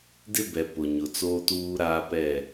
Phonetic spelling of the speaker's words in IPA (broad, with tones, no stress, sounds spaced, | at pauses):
d ɪ˦ b ɛ˨ p ʊ˨ ɲ ʊ˨ t͡s oː˦ t uː˦ ɾ aː˦ p ɛ˦˨